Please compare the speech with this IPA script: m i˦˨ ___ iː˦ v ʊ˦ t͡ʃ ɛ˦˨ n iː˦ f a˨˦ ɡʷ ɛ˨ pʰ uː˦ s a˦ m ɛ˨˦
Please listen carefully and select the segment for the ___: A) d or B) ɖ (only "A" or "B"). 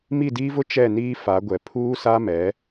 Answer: A